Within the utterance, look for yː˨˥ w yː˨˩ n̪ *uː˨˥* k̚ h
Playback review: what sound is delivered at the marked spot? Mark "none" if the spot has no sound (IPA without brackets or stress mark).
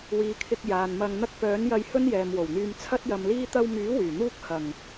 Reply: uː˥